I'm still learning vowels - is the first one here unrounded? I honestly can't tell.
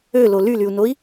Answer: no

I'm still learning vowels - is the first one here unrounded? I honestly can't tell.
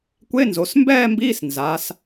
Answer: yes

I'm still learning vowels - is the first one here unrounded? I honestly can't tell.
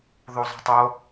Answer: no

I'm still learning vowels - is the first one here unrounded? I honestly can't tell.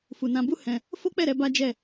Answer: no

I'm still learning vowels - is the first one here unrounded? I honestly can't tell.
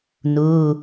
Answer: no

